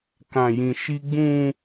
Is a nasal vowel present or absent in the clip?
present